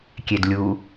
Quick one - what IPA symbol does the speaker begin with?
kʲ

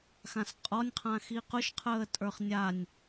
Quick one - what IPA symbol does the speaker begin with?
x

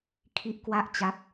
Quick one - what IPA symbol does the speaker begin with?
kʰ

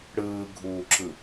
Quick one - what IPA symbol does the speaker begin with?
ɽ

